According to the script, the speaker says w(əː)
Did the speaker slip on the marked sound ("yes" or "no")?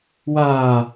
yes